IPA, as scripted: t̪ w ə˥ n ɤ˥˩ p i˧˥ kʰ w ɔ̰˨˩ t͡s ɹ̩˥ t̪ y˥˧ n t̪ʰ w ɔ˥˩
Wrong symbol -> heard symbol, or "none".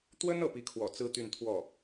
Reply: none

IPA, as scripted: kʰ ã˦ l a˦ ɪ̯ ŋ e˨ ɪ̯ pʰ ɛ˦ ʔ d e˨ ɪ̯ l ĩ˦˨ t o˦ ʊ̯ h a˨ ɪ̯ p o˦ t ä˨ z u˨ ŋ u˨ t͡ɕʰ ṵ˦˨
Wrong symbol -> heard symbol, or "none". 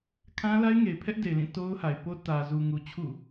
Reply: none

